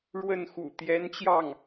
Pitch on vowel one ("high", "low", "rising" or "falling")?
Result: falling